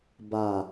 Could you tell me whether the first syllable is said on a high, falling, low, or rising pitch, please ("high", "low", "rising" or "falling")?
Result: low